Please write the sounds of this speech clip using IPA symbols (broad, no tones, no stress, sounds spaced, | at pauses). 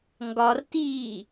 ŋ ɡ ɒ r t iː